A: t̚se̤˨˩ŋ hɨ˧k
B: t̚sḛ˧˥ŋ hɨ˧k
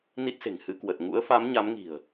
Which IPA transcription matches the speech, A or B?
A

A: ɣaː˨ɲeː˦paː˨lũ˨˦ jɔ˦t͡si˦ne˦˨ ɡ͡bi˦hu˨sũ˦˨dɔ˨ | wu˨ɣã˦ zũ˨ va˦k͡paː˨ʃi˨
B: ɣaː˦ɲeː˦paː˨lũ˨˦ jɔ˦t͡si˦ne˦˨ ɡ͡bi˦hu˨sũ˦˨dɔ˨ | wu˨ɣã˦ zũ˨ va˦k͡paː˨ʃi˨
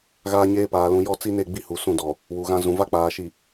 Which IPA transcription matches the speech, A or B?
B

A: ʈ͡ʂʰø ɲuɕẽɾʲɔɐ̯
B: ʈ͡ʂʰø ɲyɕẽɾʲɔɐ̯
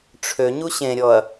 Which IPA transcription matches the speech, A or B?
A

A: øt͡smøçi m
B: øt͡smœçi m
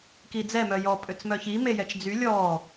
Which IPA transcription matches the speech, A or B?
B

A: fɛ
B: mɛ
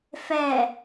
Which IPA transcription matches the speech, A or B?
A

